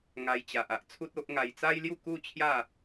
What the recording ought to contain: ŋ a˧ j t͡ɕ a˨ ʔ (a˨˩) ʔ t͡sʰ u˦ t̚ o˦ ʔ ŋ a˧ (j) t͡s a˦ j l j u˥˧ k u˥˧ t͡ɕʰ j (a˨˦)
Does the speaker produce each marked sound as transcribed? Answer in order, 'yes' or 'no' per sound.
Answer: no, yes, no

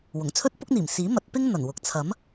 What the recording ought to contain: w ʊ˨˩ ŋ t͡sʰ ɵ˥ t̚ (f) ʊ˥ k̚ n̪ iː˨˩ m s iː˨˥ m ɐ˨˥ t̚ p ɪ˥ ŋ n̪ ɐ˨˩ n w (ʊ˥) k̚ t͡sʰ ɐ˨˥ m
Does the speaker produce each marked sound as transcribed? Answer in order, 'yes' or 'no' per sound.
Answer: no, no

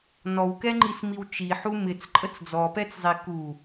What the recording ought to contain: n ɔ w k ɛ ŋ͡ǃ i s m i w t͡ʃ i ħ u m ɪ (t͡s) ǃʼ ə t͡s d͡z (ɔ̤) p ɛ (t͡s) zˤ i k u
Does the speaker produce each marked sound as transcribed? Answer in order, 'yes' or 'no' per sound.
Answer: yes, no, yes

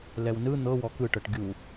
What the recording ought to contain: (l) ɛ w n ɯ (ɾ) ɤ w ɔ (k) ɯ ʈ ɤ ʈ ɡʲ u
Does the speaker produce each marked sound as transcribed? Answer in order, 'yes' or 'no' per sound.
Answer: yes, no, yes

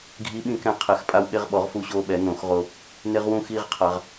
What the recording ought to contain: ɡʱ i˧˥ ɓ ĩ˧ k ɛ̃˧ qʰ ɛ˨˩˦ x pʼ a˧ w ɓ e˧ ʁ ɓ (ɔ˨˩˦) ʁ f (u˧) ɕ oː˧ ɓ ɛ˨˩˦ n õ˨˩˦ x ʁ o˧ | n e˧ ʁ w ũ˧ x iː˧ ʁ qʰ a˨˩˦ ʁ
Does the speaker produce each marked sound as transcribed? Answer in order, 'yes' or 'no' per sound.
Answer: yes, yes

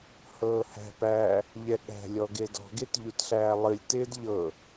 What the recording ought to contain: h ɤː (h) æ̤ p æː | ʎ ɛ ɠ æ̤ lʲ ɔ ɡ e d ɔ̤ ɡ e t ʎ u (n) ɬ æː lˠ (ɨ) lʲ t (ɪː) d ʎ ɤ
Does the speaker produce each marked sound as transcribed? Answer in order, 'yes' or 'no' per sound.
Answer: yes, no, yes, yes

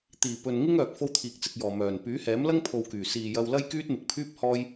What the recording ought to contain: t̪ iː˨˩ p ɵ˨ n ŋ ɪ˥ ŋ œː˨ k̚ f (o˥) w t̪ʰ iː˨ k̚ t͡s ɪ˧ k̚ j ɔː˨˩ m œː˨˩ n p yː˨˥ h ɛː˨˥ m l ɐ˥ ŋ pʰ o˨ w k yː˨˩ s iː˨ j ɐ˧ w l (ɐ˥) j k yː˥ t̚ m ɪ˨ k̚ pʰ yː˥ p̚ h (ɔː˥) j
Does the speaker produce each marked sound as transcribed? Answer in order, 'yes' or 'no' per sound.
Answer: yes, yes, yes

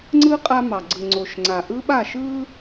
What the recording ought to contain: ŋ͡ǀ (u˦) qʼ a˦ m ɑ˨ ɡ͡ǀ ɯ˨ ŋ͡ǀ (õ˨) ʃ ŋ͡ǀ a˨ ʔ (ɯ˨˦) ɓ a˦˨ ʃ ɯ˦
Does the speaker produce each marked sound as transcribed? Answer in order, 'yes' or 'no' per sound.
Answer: no, no, no

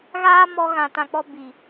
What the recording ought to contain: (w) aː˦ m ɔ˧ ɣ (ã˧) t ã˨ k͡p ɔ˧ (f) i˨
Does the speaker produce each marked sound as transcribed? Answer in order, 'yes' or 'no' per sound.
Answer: no, no, no

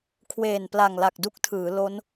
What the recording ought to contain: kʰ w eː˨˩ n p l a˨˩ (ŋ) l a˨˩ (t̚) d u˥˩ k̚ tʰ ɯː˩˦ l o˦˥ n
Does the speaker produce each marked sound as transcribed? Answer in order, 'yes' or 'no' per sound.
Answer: yes, no

